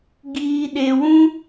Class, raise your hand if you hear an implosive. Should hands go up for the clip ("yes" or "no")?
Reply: yes